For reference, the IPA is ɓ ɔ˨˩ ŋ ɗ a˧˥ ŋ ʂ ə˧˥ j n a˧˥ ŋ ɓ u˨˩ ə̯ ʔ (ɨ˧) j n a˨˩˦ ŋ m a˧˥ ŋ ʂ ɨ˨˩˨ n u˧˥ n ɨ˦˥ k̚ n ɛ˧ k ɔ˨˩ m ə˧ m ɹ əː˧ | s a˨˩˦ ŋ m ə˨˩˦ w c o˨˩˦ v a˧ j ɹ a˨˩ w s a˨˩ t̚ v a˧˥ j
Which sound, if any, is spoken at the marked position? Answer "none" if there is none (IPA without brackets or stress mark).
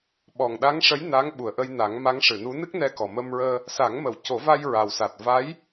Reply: ə˧